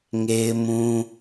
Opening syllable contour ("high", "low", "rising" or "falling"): high